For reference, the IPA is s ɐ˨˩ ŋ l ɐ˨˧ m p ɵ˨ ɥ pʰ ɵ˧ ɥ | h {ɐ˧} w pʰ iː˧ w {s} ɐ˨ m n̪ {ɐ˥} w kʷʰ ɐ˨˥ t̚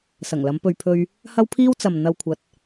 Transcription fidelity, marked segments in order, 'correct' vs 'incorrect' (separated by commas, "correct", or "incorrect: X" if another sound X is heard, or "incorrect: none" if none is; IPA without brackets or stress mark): correct, incorrect: t͡s, incorrect: ɐ˨